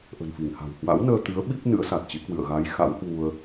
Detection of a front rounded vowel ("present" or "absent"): absent